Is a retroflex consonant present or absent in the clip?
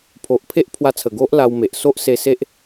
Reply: absent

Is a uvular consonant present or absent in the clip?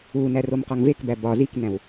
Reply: present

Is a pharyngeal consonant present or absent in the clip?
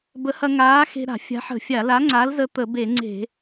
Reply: present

